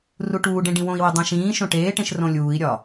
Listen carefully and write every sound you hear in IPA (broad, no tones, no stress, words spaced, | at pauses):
ruʈuːɖẽ ɖĩwõi̯wi dˤẽʃĩːʃõ ʈeːʈẽʃ rõlʲuːi̯ɾʲɒ